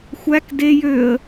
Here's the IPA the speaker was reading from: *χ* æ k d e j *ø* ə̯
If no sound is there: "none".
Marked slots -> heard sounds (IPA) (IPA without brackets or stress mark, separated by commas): xʷ, ø